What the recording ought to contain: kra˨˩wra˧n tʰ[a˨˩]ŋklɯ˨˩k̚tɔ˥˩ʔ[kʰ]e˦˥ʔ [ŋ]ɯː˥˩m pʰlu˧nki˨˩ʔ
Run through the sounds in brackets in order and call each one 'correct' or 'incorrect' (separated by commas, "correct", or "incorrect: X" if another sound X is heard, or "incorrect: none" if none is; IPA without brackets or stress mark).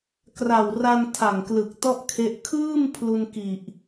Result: correct, correct, incorrect: kʰ